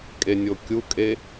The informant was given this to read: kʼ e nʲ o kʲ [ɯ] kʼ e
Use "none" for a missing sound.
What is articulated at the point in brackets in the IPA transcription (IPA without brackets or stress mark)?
u